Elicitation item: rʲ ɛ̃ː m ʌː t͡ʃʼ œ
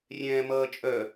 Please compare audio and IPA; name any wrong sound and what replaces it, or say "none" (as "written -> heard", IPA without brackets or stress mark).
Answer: none